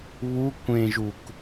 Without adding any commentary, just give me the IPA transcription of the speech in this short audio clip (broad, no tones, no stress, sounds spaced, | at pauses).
β u kʷ ẽ ʒ u k